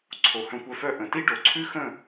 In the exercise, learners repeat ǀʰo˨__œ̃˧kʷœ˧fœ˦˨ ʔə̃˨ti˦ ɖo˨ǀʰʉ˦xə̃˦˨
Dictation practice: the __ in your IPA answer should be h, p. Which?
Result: h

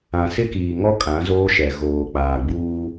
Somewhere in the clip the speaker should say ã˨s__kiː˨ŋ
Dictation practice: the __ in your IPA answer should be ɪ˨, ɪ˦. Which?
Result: ɪ˦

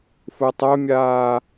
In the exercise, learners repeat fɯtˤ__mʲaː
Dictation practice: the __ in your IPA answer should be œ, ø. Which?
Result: œ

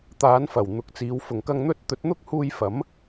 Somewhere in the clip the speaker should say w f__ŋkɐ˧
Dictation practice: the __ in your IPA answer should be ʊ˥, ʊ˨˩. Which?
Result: ʊ˨˩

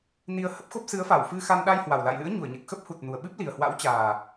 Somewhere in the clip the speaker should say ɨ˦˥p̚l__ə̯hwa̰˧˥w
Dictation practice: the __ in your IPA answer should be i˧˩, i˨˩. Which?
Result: i˨˩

